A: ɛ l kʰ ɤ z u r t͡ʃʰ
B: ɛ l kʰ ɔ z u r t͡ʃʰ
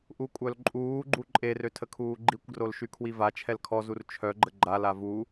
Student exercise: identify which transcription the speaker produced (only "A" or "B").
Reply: B